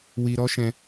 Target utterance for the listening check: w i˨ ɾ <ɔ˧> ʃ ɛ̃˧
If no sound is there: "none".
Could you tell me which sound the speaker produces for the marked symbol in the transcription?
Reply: ɔ˧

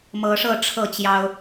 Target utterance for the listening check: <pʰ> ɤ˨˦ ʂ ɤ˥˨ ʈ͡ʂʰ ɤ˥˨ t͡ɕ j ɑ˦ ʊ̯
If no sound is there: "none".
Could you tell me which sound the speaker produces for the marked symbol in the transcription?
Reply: m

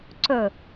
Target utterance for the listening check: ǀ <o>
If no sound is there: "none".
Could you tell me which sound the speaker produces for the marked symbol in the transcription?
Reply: ɵ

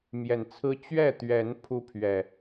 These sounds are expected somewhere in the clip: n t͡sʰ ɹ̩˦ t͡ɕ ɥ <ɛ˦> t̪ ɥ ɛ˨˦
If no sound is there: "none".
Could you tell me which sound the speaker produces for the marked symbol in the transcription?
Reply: ɛ˥˨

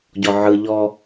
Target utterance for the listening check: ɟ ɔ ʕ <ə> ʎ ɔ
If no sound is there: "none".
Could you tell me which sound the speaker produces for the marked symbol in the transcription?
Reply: ɯ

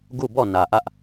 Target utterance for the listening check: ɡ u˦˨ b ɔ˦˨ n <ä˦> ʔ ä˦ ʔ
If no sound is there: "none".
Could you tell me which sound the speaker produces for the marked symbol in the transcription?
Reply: ä˨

